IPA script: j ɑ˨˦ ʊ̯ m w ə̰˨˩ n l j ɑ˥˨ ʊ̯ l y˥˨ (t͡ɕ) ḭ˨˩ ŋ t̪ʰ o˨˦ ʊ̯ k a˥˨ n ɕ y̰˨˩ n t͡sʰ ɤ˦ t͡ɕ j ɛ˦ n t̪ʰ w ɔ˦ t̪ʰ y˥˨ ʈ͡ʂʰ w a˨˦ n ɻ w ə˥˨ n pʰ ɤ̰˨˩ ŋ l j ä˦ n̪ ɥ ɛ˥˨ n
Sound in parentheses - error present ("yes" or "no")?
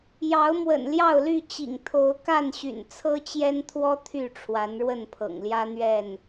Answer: no